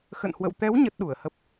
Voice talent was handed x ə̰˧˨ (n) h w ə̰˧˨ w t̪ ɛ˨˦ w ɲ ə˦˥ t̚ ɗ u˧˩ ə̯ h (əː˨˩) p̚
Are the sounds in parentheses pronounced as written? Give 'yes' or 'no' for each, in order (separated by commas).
yes, no